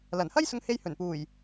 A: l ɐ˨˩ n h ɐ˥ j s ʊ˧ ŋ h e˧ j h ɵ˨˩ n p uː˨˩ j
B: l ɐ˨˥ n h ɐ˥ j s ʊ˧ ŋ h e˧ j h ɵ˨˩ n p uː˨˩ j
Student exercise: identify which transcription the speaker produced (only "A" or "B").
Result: A